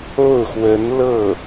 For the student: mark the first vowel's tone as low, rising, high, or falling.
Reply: falling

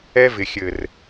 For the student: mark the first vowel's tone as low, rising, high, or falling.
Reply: high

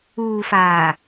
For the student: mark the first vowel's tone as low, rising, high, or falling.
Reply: low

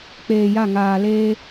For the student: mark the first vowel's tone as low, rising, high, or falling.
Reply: low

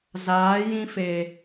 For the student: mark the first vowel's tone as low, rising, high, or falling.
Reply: rising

